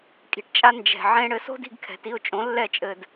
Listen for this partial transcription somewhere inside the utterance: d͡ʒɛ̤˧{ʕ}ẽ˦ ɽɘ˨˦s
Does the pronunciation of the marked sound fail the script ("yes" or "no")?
no